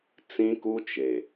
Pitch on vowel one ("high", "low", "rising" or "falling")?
high